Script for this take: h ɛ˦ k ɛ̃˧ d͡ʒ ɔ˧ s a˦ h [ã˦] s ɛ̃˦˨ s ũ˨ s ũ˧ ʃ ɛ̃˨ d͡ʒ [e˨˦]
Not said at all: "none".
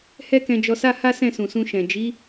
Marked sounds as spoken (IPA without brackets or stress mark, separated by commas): a˦, i˨˦